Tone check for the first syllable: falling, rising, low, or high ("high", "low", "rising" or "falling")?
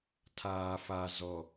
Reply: low